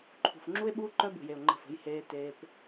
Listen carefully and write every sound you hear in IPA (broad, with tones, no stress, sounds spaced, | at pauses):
ǃʰ ṳ˨ f ŋ͡ǁ u˦ e̯ ɓ uː˦ ǃ œ˦ b ṳ˨ j e˨ o̯ ŋ͡ǃ ə̤˦˨ f ə̤˦ j h eː˦ t eː˦ p